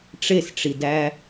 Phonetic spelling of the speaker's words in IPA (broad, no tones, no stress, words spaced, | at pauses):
ʈ͡ʂesʈ͡ʂidæ